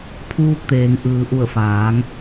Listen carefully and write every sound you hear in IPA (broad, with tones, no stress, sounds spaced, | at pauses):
pʰ uː˧ k̚ t̪ eː˩ ŋ ʔ ɯː˩ ʔ u˧˩ ə̯ f aː˩˧ ŋ